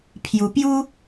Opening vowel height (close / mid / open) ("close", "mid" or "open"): close